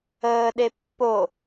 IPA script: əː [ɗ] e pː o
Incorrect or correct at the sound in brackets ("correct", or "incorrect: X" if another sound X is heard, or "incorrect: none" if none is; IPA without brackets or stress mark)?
correct